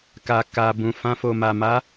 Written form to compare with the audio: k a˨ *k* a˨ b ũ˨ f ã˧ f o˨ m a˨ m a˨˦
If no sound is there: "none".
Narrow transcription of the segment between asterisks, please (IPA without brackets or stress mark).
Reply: k